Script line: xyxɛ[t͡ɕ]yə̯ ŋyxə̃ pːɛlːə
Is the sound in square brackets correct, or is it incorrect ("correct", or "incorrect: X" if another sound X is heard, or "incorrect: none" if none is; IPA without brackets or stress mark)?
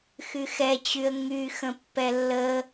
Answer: correct